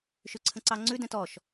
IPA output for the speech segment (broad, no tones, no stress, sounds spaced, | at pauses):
ʃ ʉ ǀʰ ə̃ ǀ ɑ ŋ͡ǀ ʉ d ɛ̃ t ɔ ʃ